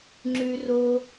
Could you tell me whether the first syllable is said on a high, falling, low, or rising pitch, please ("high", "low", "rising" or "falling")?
high